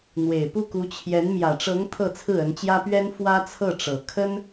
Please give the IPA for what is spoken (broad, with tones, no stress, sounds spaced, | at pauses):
n̪ w e˨˩ ɪ̯ p u˥˩ k u˧˥ t͡ɕʰ j ɛ˧˥ n m j ä˨˩ ʈ͡ʂ ɤ˧˥ ŋ t̪ʰ ɤ˥˧ t͡sʰ ɹ̩˥˩ ə˧˥ n t͡ɕ j ä˥ p ɥ ɛ˥ n f w ä˥ t͡sʰ ɤ˥˩ ʈ͡ʂ ɤ˨˩ kʰ ə˥ n